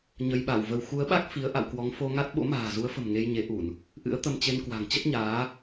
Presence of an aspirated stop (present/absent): absent